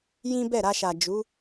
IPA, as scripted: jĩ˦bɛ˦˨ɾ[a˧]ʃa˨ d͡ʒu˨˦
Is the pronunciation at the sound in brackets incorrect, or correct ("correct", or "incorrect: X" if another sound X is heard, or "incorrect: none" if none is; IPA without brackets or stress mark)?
correct